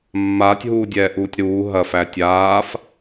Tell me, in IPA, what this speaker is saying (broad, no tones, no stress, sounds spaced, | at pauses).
mː aː tʲ ɦ uː dʲ ɛː ʔ uː tʲ ɾ uː ɦ ɐ f æ tʲ aː f